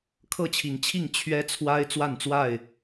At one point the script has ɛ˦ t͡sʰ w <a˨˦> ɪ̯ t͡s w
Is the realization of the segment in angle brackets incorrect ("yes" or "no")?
yes